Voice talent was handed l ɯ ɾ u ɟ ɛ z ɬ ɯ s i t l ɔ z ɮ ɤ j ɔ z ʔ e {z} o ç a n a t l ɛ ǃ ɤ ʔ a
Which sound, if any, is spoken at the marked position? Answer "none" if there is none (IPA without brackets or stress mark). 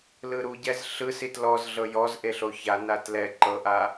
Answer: ɬ